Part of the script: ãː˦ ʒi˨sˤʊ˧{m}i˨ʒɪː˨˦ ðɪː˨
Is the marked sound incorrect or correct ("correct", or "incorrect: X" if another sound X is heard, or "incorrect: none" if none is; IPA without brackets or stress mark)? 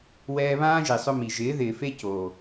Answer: correct